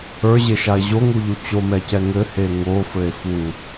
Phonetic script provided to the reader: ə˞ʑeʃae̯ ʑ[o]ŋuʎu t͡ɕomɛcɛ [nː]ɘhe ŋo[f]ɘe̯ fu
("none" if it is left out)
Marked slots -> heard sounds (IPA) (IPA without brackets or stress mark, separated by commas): o, ŋ, f